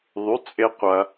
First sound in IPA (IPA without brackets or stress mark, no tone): ðˤ